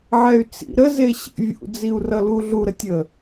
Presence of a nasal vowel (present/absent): absent